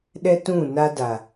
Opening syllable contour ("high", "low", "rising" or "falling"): high